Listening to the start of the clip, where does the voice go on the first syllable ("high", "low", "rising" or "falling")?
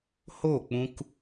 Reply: falling